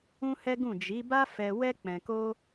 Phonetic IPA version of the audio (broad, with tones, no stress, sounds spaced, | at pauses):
ũ˦ h ɛ˦ ɡ ũ˦˨ d͡ʒ i˨˦ b a˦ f ɛ˧ w ɛ˦ k͡p ɛ̃˧ k o˦